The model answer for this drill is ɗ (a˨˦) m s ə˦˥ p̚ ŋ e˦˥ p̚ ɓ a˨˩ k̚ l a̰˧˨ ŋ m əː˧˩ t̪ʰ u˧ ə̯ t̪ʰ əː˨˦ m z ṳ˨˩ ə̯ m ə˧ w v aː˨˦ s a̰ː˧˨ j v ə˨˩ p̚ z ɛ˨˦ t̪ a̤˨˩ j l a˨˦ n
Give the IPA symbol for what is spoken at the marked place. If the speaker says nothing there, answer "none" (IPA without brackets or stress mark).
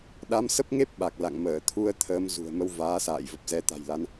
a˨˦